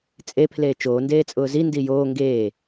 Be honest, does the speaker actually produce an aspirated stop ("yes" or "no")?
yes